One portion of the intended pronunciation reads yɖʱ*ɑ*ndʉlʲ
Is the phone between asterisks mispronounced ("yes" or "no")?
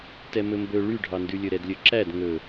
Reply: no